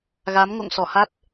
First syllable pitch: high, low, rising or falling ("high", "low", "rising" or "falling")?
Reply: rising